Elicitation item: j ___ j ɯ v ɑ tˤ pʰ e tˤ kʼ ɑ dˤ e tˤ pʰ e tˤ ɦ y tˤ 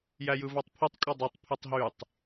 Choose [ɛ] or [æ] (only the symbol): æ